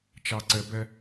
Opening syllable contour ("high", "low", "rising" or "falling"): low